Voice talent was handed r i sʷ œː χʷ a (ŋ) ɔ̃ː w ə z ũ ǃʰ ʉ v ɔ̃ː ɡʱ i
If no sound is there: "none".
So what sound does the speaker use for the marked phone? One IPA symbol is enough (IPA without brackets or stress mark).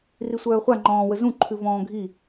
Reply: ŋ͡ǃ